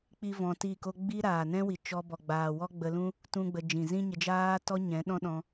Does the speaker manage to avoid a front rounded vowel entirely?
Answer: yes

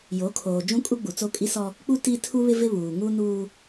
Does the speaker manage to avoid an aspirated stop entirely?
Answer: no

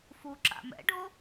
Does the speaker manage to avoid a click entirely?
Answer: no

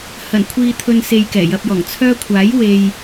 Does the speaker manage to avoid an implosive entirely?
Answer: yes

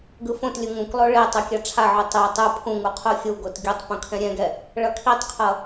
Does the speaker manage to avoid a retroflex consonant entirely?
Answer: no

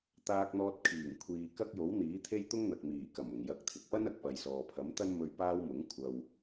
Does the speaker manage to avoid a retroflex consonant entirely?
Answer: yes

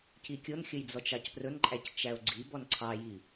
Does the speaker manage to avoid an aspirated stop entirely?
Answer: no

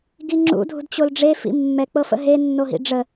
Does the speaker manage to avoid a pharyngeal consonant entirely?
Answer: yes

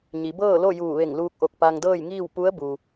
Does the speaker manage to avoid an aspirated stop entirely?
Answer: yes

